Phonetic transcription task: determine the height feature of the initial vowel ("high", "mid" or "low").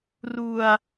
high